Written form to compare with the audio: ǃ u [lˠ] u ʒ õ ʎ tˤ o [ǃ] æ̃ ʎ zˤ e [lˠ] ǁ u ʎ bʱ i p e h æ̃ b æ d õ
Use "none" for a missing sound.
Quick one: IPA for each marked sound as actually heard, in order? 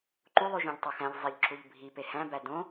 lˠ, x, ʎ

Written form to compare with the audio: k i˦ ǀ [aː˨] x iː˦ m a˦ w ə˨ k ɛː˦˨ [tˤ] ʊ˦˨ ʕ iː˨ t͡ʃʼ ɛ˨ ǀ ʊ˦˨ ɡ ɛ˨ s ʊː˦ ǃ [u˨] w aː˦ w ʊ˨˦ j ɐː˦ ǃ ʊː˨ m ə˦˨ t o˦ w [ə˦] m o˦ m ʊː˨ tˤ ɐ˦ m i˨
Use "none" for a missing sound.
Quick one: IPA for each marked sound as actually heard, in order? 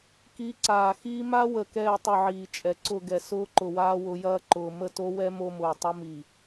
aː˨, tˤ, ʊ˨, ɛ˦

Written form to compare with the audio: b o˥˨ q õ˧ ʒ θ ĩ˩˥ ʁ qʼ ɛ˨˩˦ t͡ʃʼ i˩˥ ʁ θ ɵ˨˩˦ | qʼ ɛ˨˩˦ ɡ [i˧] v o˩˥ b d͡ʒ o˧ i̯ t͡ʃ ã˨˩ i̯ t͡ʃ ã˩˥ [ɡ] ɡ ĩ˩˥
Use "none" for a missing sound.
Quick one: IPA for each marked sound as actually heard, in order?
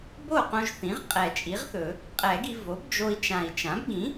i˧, b

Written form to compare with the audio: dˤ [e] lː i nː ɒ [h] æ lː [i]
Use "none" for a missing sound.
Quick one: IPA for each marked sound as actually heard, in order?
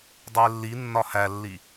e, h, i

